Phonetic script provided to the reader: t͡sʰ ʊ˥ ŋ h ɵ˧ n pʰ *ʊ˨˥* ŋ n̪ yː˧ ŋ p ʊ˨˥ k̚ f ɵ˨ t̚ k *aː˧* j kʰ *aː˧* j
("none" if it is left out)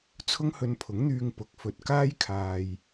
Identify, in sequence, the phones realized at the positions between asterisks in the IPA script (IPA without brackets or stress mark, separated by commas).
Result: ʊ˨˥, aː˥, aː˧